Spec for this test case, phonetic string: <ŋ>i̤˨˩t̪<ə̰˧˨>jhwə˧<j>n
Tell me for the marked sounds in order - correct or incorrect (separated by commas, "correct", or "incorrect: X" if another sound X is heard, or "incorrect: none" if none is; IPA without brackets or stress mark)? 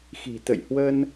incorrect: x, correct, incorrect: none